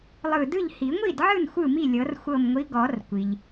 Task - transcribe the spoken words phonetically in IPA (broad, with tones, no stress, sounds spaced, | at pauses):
lˠ ɯ˧˩ d ɯ˥˩ ʎ h i˨˩˦ ŋʷ i˥˩ d ʕ ɯ˥˩ n xʷ ɯ˥˩ m i˥˩ lʲ ɤ˨˩˦ r xʷ ɤ˧˩ m ŋʷ i˨˦ ɡ ɔ˨˩˦ r kʷ i˩ ʎ